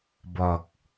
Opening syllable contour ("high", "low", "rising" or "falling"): low